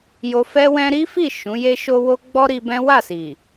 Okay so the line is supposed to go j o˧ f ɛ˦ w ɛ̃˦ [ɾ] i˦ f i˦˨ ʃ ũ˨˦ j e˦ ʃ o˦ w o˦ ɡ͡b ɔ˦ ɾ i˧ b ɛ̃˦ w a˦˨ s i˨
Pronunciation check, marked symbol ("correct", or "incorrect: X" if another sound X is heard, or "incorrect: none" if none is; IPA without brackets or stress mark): correct